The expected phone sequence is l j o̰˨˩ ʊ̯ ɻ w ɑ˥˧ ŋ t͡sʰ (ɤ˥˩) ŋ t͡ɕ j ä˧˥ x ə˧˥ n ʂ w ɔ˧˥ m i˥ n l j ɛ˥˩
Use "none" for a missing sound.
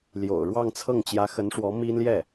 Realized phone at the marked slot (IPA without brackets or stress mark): ɤ˥˩